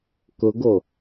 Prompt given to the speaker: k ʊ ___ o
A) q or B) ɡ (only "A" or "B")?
B